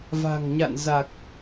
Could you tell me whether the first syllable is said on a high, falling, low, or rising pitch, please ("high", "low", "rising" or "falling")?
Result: low